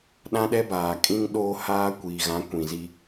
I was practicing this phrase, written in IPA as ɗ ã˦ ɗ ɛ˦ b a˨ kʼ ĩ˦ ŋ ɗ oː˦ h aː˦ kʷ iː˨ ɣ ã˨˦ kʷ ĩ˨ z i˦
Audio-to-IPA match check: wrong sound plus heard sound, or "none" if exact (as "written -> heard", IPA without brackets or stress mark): a˨ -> aː˨